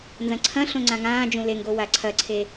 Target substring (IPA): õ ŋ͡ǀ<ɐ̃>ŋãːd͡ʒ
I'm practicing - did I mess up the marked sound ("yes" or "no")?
yes